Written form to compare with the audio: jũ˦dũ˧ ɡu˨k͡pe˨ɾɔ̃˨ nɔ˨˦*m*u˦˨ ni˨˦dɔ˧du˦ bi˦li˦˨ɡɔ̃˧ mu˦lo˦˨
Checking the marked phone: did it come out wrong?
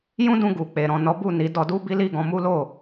yes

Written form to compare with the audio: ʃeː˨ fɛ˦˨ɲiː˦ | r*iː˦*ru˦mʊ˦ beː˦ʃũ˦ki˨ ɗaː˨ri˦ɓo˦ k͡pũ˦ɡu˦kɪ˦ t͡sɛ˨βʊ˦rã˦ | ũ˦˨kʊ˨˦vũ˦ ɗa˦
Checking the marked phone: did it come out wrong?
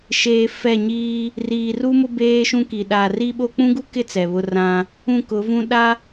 yes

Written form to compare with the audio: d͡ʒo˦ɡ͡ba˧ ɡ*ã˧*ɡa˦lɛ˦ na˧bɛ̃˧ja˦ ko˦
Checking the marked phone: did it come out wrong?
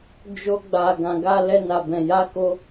no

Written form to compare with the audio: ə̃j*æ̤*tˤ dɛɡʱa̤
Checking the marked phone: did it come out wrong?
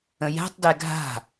no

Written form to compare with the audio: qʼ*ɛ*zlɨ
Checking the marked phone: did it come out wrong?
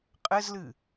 yes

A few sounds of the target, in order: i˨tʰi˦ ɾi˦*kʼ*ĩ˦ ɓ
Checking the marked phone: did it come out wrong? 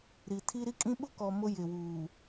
no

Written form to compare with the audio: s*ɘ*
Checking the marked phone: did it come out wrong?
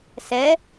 yes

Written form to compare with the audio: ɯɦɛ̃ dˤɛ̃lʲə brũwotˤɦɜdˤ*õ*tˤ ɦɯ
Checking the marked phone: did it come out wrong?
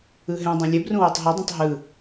no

